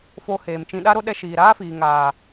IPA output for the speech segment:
fo˧ heː˨mt͡ʃĩ˧ ɗa˦ɾo˦ɗɛ˧ ʃiː˨ɾaː˦fiː˨ ŋaː˨

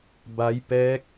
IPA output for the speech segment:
ba˦˥jpɛː˦˥k̚

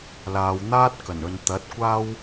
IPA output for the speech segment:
laː˨˧wn̪aː˥t̚ kɐ˨˩nɵ˨nt̪ɐ˨˥t̚ kʷaː˥w

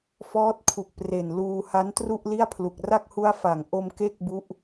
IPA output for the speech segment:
fɔː˦˥t̚kʰu˨˩k̚pre˨˩nluː˧ ha˦˥ntru˥˩ʔli˥˩a̯pʰlu˨˩k̚ ra˥˩k̚hu˦˥a̯fa˩˦ŋ ʔo˧m ke˥˩k̚bu˦˥ʔ

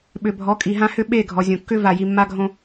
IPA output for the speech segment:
ɓʏ˨bʱɔ˨˦kʼi˨ɦã˦ hʏ˦ɓe˦˨ ɡʱɔ˨zʲõ˨kːʏ˦ va˨ji˨mːa˦ɡʱõ˦

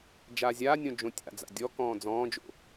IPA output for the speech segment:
d͡ʒaːzʲaːnʲõ d͡ʒõtʲa̰d͡za̰ dʲɔkɔ̃ː d͡zɔ̃ːd͡ʒo̰

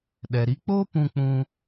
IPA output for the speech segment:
ɗɛ˨ɾi˧k͡poː˦ pũ˧k͡pũ˧

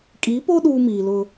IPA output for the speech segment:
kʼi˨˦po˦ ɗuː˦miː˨lʊ˦

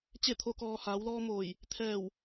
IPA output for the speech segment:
t͡ɕe˥˨t̪ʰo˧˥kɔː˧ haː˩˧wlɔː˧moː˧˩j | t̪ʰɛː˧˩w

